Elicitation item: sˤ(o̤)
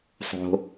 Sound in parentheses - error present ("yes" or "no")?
no